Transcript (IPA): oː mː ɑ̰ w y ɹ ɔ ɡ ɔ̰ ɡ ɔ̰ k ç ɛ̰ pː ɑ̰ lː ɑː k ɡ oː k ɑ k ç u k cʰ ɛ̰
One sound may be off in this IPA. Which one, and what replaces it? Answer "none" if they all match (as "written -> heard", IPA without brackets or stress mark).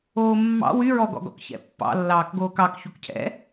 none